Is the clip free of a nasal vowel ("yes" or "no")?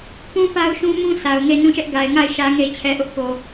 no